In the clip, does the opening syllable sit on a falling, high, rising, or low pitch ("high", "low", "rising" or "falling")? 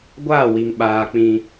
falling